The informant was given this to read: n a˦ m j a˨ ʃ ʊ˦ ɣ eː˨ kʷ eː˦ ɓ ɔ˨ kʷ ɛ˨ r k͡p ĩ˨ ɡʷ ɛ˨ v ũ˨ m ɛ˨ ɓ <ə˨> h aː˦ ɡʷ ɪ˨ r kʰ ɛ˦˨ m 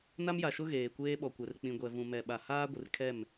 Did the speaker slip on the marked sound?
yes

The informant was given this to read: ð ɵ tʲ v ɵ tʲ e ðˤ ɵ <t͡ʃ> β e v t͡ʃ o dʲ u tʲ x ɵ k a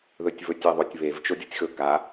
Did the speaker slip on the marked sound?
yes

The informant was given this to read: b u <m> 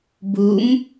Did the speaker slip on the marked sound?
no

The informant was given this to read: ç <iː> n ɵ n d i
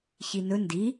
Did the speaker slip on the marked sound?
yes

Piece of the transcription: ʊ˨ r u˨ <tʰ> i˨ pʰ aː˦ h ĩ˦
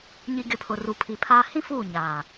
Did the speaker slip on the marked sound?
yes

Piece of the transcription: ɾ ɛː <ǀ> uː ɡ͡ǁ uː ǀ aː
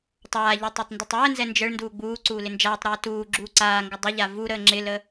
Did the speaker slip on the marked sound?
yes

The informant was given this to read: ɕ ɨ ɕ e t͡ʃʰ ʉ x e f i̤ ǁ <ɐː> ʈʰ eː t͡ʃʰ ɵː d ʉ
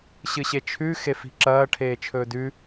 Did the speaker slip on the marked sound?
no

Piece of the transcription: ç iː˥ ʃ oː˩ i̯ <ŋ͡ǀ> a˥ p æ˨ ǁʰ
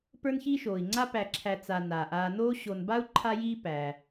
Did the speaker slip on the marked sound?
no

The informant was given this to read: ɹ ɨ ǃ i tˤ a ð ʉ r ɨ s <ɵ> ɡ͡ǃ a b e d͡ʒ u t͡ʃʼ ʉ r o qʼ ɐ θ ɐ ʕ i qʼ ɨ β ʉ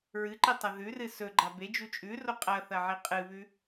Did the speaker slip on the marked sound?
no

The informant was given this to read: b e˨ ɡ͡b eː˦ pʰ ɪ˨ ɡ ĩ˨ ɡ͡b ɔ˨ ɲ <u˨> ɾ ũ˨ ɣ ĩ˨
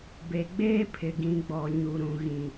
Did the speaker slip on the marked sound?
no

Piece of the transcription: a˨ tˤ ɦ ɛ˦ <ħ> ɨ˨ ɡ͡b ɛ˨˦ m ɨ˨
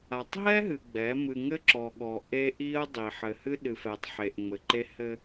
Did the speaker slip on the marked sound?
yes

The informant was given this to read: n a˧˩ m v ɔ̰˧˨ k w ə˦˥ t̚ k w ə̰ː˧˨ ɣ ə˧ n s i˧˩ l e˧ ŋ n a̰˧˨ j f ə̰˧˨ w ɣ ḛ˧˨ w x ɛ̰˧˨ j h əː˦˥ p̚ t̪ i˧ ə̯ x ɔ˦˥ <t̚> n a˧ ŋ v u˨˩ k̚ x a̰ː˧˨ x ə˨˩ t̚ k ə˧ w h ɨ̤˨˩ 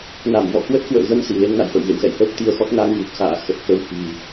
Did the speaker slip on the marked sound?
no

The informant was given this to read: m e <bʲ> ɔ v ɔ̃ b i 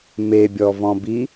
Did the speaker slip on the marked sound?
no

